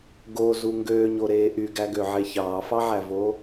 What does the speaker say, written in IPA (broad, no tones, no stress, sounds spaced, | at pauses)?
ɡ o z u ŋ ɡ øː ɲ o ɾ eː ʔ y ɡ æ ɡ ø ʕ e ç ɑː f ɑ ʕ æ v o